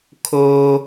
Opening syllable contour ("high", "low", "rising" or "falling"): low